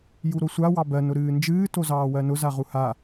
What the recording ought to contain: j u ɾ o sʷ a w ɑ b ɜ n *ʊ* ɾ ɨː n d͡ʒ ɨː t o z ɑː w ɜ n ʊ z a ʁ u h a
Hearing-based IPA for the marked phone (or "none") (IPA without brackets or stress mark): ʊ